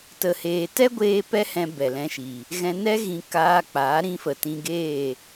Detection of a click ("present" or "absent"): absent